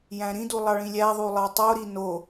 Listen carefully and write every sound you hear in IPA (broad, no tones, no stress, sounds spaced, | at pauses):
j æ̃ ɾ ĩ d u lˠ ɑ ɭ ĩ lʲ æ ðˤ u lˠ ɑ tˤ o ɾ i n o